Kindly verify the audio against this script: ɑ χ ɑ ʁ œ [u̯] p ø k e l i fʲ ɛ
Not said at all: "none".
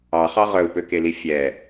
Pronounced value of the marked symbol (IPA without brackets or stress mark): u̯